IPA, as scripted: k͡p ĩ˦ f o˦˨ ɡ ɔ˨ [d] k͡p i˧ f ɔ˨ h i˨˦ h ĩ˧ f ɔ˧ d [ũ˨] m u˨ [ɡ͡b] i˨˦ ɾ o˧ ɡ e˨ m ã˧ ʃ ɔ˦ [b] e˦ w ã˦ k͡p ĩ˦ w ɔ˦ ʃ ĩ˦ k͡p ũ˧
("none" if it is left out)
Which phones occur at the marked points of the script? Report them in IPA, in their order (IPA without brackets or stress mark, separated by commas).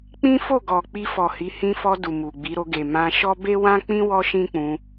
none, u˨, ɡ͡b, b